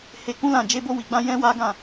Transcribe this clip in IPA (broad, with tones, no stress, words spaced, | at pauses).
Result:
he˧kũ˦lã˦˨ d͡ʒe˧bo˧wi˨ɡ͡bã˧ jɛ̃˦wa˦ ɡã˦˨